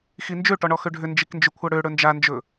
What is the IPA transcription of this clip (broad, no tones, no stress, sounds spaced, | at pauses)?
x i n d͡ʒ ø ʈ ɔ ɳ ɔ x ø ɖʱ ʏ n d͡ʒ i k n d͡ʒ ʏ kʷʰ ʌ ɽ ø ɽ ɵ n d͡ʒ a n d͡ʒ ɵ